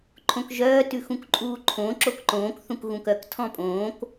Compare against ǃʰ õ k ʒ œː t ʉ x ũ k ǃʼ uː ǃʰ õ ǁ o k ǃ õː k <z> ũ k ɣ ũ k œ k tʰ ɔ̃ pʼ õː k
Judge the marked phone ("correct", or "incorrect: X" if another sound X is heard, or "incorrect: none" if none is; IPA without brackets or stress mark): incorrect: θ